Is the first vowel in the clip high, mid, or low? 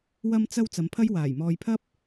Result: low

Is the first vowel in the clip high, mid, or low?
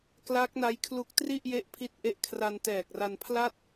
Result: low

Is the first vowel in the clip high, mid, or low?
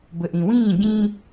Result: mid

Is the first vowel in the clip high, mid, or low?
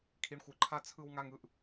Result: high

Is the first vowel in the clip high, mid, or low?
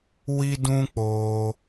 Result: high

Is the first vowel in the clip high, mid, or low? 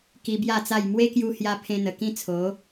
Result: high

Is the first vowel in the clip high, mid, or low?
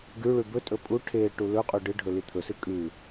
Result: high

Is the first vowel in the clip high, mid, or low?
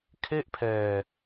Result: mid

